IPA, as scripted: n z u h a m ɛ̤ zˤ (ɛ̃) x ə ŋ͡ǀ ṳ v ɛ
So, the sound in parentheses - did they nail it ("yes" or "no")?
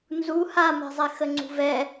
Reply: no